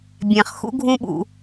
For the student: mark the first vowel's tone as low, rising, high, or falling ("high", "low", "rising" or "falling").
low